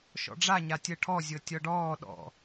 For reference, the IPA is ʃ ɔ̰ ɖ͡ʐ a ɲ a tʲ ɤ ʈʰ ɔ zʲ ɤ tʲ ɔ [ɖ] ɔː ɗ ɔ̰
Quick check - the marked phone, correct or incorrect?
correct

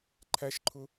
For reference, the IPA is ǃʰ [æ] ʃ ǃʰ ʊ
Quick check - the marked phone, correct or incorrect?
correct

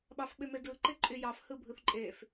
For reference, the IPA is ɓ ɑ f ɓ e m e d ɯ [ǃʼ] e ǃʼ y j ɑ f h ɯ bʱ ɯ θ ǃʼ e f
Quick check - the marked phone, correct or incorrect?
incorrect: ǃ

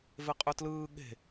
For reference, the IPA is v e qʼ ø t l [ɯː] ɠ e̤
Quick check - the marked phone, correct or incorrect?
correct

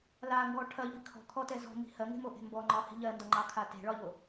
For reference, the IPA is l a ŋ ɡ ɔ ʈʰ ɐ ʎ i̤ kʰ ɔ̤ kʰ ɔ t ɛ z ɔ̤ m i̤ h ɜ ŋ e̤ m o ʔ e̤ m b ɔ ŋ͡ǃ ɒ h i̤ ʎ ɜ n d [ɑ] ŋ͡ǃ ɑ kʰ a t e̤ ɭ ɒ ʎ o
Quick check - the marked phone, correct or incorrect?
incorrect: ɒ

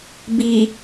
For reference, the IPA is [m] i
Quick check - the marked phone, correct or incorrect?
incorrect: b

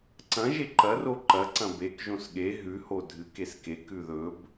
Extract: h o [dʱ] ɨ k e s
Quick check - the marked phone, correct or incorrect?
correct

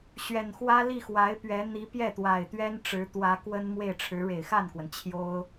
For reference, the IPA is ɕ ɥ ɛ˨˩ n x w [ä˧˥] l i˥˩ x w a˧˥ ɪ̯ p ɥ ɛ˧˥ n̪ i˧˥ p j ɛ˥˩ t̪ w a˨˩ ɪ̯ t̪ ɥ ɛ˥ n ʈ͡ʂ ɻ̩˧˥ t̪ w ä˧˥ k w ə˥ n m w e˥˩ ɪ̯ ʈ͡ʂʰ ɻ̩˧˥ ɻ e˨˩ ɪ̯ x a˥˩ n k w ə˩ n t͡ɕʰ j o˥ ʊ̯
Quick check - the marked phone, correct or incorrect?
incorrect: ä˥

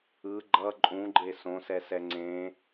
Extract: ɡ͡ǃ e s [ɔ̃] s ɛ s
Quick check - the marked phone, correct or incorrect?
incorrect: õ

